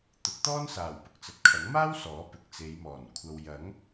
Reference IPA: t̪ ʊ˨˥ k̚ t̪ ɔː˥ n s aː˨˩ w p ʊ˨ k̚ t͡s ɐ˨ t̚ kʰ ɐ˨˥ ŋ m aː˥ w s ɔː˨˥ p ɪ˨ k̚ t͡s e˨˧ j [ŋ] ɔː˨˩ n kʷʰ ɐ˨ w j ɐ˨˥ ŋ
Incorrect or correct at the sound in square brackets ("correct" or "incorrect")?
incorrect